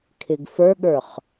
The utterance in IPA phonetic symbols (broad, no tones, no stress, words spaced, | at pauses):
kʰɪɡfə˞ɠə˞χ